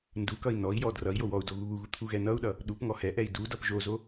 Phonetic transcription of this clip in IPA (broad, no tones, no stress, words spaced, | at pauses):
ndukʌi̯ nɔi̯jɔ drʌi̯jo wɔu̯do ɣuβuɣu t̪ʰuɣɛnʌu̯ɗʌ | ɗupŋɔ hɛʔɛi̯ dudʌp ʒozo